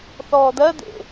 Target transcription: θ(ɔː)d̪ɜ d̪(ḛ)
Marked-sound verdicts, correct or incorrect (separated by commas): correct, correct